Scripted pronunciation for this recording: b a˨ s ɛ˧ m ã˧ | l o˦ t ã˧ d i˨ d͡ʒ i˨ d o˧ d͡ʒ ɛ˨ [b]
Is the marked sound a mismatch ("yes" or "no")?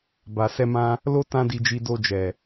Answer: yes